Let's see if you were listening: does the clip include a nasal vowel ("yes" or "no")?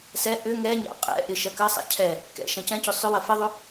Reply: yes